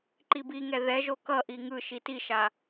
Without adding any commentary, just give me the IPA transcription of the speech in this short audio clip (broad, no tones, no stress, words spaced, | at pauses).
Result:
ǃibiŋɛ ðɛʒo kʌʔi ŋɯ ʃitiʃa